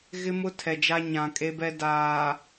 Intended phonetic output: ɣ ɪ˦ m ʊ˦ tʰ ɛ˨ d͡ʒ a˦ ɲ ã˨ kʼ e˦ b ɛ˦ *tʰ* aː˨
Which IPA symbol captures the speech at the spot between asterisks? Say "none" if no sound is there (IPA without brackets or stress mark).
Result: d